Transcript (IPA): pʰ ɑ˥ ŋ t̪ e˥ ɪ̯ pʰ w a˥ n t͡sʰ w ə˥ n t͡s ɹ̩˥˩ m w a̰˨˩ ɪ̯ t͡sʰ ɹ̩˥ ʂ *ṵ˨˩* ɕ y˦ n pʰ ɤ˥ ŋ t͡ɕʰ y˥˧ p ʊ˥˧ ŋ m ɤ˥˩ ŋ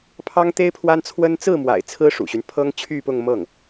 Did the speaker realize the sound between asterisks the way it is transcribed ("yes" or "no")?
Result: yes